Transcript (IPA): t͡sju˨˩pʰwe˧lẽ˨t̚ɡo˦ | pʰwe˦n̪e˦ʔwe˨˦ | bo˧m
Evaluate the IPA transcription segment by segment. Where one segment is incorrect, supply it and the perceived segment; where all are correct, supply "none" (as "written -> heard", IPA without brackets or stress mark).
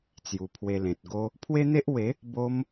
none